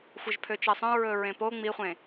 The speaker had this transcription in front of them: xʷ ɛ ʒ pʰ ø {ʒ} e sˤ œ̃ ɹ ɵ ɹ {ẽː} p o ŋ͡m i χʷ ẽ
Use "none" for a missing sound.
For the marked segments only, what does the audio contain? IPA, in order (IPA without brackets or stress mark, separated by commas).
t͡ʃ, ẽ